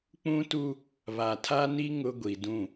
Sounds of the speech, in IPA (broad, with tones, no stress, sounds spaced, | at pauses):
k͡p ũ˦ t u˦ | β a˨ tʰ a˦ n i˦ ŋ ʊ˦ ɡʷ i˨ d ũ˦˨